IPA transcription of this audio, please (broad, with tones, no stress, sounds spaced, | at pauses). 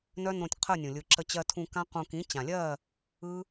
n œ˦ n õ˧ tʲ qʰ ə˦˨ nʲ ũ˨ lʲ ɯ˨ ǁ ə˧ t͡ɕ ɜ˧ tʰ ũ˧ k ã˦ q ũ˧ k ĩ˨˦ t͡ɕ ã˨ lʲ ɜ˦˨ | ɯ˦